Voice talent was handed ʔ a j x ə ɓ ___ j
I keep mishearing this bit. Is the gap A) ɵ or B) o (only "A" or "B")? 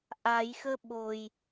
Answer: B